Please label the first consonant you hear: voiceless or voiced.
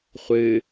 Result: voiceless